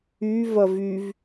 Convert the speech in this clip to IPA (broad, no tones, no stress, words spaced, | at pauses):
y vɐvyv